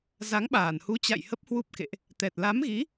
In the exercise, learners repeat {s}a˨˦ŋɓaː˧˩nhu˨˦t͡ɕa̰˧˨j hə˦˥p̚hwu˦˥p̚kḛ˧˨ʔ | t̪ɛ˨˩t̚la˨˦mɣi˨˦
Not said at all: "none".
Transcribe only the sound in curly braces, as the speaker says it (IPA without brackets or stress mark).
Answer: z